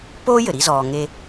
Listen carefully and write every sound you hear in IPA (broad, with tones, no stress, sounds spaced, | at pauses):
p oː˥ j ɘ˩ ɾ i˦ z ɔː˨ ŋ e˦